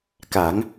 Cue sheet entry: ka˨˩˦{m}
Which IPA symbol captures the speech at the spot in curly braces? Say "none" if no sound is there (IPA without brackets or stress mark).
ŋ